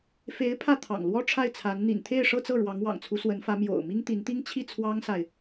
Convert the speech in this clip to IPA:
fe˧˥ɪ̯ pʰä˥˩t̪ʰɑ̰˨˩ŋlwɔ˥ ʈ͡ʂʰa˥˩ɪ̯t͡sʰa˧˥n n̪ḭ˨˩nt̪ʰe˥˧ɪ̯ ʂɤ˥˧t͡sɤ˥˩ ɻwɑ˧˥ŋwɑ̰˨˩ŋt͡sʰu˧˥swə˧˥n fä˧˥mjo̰˨˩ʊ̯mi˥ŋt̪i˧˥n t̪i˥ŋt͡ɕʰi˥˩ t͡sʰwɑ˥ŋsa˨ɪ̯

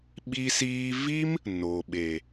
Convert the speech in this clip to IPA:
ɓi˧siː˧vi˦m | no˨ɓe˨

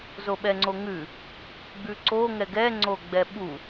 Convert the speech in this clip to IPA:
zoɓɛŋ͡ǀoŋʉ | ɡ͡bʉǀo ŋɛɡɛ ŋ͡ǀoɡ͡bɛɓu

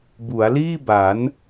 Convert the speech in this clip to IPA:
bu˩˦a̯liː˥˩ba˩˦n

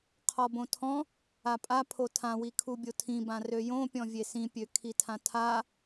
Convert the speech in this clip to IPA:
qʰɔbõtʰɔ̃ | apʼa pʰotʰãwikʰu bʲotʰĩbã røjõpʲɔ̃ vʲesĩpʲø kʰitʰãtʰa

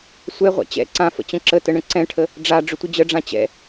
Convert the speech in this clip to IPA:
sʷɛʁʷa̰ t͡ɕɛ̰ ǀãfə̰ t͡ɕə̃ǁətə ɳə̃ǀɛ̃ʈʰə | ɖ͡ʐa ɖ͡ʐʏtʷəd͡ʑəɖ͡ʐã t͡ɕɛ̰

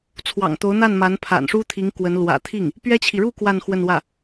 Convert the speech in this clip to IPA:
t͡sʰwɑ̰˨˩ŋt̪o˧˥ʊ̯n̪a˥˩nma˧˥n pʰa̰˨˩nʂu˥ t̪ʰi˧˥ŋkwə˧˥n lwä̰˨˩t̪ʰi˥˩ŋ | pɥɛ˥t͡ɕʰi˨ ɻu˥˧ kwa˥˧n xwə˥˧nwä˥˩

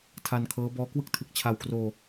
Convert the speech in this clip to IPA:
tʰa˧nkʰɤː˦˥bɔː˦˥ kwɯ˥˩k̚tʰɯ˨˩k̚t͡ɕʰa˧w kroː˧

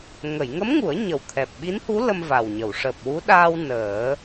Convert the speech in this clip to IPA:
ŋə˨˩˨jŋə˧˥mŋu˨˩˦ə̯ ɲə˨˩wt̪ʰɛ˨˩p̚ɓi˧˥nhu˧˥ lə˧mva˨˩wɲə˨˩˨w ʂəː˨˩p̚wu˧˥ ɗaː˧w nəː˨˩˦

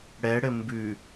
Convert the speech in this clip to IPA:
ɽɛɽɘ mbʉ

